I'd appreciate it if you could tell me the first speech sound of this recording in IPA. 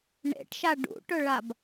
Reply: ɳ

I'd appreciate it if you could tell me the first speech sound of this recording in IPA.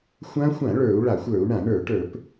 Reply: xʷ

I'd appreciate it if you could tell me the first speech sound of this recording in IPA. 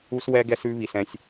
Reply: u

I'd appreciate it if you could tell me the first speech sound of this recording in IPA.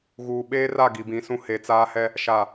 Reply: ɣ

